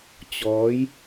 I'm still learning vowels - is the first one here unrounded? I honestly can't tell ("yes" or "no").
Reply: no